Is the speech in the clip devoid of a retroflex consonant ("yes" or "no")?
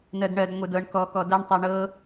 no